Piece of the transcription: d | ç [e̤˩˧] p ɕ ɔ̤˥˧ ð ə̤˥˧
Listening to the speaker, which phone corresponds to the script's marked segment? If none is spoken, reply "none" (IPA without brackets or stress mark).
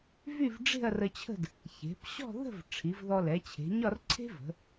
e̤˩˧